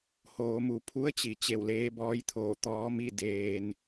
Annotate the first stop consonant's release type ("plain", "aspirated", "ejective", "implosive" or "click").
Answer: aspirated